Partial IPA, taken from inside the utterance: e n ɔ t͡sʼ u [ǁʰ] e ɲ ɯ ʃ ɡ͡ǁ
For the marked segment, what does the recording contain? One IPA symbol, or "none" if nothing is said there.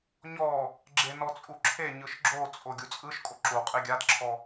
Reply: ǁʰ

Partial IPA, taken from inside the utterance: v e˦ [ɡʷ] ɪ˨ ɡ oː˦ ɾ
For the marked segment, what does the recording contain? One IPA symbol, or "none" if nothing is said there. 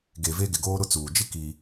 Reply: ɡ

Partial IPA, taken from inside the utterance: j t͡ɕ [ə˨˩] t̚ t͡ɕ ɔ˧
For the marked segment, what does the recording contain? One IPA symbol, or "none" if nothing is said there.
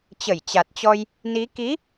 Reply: a˨˩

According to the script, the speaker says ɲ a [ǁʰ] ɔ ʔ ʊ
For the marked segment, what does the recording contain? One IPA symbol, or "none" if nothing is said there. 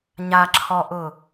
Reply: ǁʰ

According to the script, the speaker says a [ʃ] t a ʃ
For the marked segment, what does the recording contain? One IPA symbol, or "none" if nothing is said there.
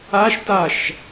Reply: ʃ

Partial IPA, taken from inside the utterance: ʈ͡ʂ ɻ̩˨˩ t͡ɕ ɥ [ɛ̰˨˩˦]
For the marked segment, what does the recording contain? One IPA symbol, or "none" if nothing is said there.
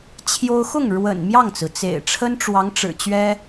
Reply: ɛ˥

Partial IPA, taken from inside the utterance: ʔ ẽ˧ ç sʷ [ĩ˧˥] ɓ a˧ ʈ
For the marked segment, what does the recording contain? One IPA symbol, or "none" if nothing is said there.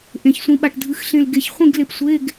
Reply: ĩ˧˥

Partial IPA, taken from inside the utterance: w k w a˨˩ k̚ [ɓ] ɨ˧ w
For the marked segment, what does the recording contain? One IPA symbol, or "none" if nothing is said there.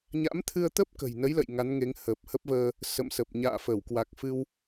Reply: f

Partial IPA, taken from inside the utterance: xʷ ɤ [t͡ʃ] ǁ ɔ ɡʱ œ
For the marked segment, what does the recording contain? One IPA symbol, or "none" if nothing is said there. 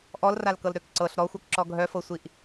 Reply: k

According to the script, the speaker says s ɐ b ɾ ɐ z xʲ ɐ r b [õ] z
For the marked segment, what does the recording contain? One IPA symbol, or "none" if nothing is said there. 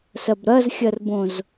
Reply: õ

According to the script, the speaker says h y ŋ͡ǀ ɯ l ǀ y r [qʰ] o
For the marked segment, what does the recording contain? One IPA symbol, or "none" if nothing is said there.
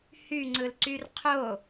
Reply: qʰ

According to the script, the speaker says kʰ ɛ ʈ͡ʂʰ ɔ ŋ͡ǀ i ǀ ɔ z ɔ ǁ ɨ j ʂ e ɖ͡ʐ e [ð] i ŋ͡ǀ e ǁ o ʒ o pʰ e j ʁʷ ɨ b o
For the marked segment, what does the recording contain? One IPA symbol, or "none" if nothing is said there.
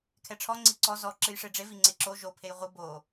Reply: v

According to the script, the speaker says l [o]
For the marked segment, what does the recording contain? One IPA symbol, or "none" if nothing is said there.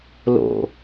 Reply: o̰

